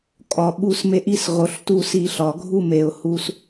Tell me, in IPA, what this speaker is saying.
kʼ ɒ˨ ɓ u˦ s m e˦ ʔ i˦ s ʁ o˨ ɬ t u˦ s i˦˨ ɬ ɒ˨ ɡʱ u˦ m e˨ ʊ̯ h u˦ s

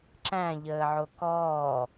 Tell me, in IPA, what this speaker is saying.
ǁ æ̃ ʎ əː ʕ o k ɔː

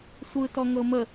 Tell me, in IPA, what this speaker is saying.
sʷ ɯ t ɔ ŋ ɤ m ə

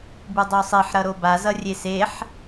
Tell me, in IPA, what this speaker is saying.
b ɯ dˤ o sˤ i ħ ɾ ʌ ɾ o b a z ʌ rʲ e s e ħ

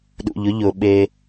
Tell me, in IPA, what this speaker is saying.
ɗ ṵ˩ ʎ ʊ˦ ʎ ʊ˩ ɓ e˨

